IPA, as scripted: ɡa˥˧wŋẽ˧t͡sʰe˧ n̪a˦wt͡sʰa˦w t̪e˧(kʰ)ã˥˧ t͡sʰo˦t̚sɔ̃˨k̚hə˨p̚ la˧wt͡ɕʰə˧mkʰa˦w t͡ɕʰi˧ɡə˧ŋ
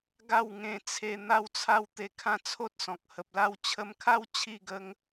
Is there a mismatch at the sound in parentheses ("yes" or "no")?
no